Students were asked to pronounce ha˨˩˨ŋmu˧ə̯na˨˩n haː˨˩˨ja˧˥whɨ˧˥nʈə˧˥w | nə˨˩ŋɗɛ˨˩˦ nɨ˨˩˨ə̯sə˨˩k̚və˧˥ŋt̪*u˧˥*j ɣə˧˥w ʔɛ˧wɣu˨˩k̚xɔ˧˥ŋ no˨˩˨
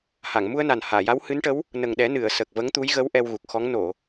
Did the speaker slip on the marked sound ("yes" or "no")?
no